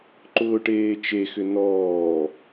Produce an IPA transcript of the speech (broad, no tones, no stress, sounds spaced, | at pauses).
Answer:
ǃ ʊː ʈ eː t͡ʃ e x ʏ n ɔː